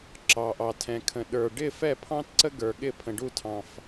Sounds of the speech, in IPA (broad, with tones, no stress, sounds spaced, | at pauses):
ǁ ɑ˩ ʔ ɑ˩ tʰ ɛ̃˩ kʰ ə̃˩ ɗ ə˞˩ ɖ ɪ˥˨ f ɛ˥˨ pʰ ɑ̃˥ t ǀ ə˥ ɡ ə˞˩ ɠ ɪ˥˨ pʰ ə̃˩ ɖ u˥˨ tʰ ɑ̃˩ f